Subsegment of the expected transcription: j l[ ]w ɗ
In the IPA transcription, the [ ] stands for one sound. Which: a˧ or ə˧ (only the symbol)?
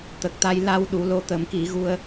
a˧